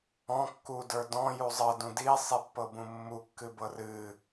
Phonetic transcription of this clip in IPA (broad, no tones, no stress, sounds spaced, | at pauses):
ɔ̃ kː u d ə˞ d ɔ̃ j u zˤ ɤ d ũ d i sˤ i pː ɤ b ũ mː u kː ɨ b ɤ r ɨ